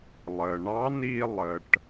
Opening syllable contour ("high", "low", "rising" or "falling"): low